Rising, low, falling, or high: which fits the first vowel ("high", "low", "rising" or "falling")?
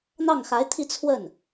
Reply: falling